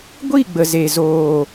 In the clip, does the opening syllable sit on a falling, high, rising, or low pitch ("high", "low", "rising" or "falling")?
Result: falling